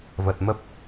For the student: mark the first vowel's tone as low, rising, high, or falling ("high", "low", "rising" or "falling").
low